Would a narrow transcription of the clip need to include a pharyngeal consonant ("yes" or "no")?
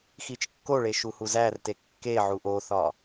yes